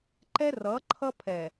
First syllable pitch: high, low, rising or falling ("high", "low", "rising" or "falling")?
high